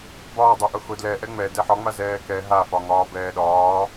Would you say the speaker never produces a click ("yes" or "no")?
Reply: yes